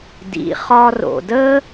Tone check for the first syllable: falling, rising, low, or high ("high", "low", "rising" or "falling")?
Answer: low